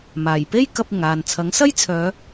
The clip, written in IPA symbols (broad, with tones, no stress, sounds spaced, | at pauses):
m aː˨˩ j p e˥ j k ɐ˧ p̚ ɪ˨˩ ŋ aː˨ n t͡sʰ ɐ˨˥ ŋ s ɐ˥ j t͡sʰ œː˨˧